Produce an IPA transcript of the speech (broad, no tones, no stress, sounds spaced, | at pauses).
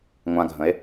ŋʷ ã ɡʱ ə̃ e̯